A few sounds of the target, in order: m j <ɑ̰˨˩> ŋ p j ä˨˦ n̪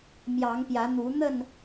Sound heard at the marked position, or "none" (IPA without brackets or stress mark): ɑ˨˦